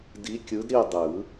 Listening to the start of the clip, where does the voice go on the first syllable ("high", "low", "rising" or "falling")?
rising